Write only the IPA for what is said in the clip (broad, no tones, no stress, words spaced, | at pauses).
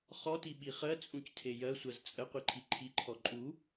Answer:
χɔti ɓiχɜt͡sʼũctʰe jɜsʷɜz t͡sʼəqʷiǃʰi ǃʰiǃʰɔ ǃʼu